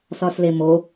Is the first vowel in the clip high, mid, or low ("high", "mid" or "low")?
low